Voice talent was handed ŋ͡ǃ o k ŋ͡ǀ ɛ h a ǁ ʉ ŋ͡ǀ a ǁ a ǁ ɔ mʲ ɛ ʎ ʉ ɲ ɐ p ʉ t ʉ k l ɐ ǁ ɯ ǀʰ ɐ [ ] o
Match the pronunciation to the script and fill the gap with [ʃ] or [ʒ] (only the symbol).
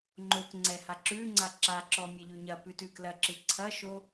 ʃ